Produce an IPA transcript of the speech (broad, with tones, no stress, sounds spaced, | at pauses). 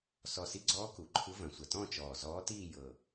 s ɔ˨˩ s i˧˥ ɡ͡ǀ ɔː˧˥ k u˩˧ ǃʰ ɯ˧˥ v ɐ̃˩˧ sʷ ɐ˨˩ t ɔ̃˥˧ t͡ʃ ɔː˨˩ z ɔː˧˥ t iː˥˧ j ɤ˨˩